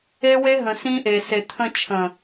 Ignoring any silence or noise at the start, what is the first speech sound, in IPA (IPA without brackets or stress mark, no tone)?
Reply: e